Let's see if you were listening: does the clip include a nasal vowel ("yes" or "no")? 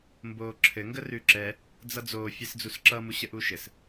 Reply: no